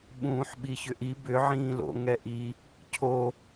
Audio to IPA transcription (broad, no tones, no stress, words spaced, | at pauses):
ɓũːħɓiçʏʔi bʏ ʕĩːlo̰ ŋɛʔi | cʰo